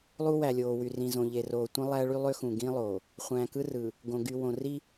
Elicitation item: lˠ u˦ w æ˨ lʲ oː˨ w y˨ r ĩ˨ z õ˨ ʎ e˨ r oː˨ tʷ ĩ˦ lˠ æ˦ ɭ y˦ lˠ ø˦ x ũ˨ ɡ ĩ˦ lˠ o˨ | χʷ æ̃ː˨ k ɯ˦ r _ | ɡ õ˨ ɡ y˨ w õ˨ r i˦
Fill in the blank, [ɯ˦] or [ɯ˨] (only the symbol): ɯ˨